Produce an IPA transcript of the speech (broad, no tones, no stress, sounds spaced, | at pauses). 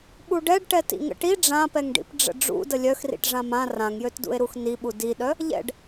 ɓ u ɖ ɛ ɖ ʈ ɛ t ḭ ŋ ə̰ ʈ i ɖ͡ʐ ã p ɛ ŋ ɖ ḭ p ɖ͡ʐ ə̰ ɖ͡ʐ ṵ d ə lʲ œ x r ḭ ʈ ʐ ã m ã r ã ŋ j ø t d ṵ e̯ ɾ u x n i ɓ u d i ɗ œ | ʎ ɛ̰ ɖ